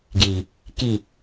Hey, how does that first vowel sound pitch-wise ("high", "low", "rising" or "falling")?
low